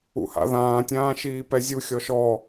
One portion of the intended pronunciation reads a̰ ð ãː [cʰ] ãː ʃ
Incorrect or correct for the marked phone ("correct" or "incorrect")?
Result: incorrect